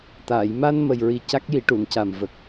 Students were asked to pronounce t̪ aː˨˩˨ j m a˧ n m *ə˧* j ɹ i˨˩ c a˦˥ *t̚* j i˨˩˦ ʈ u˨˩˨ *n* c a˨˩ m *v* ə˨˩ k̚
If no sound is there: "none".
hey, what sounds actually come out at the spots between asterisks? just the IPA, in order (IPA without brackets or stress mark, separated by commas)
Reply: ə˨˩, k̚, n, v